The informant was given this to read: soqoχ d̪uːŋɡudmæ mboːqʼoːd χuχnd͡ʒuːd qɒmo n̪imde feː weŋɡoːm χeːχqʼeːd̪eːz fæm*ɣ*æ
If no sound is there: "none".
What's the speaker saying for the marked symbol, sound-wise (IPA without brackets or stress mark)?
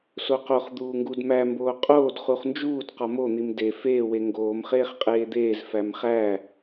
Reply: χ